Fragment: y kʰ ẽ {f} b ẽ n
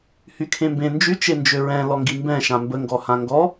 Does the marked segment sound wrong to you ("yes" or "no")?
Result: yes